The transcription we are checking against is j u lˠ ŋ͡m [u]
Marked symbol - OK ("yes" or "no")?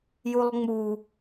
yes